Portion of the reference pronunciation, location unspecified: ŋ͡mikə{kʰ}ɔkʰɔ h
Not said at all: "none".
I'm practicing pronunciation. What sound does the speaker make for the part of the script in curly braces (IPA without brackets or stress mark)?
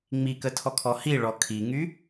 tʰ